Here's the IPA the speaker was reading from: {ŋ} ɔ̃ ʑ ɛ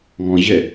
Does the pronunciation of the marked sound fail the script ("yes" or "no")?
no